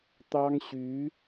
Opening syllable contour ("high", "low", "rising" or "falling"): high